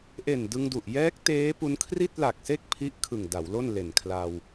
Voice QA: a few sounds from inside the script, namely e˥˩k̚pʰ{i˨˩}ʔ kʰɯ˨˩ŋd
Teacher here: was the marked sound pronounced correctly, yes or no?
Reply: no